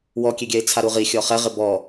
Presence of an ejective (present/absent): absent